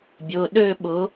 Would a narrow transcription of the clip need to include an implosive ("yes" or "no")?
yes